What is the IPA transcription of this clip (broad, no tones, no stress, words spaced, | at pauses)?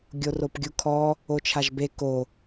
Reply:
ɡʲoropɡʲukʰɔ | ot͡ʃʰaʒbe ko